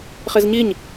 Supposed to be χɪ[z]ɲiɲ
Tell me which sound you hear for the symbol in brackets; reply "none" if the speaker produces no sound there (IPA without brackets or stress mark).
z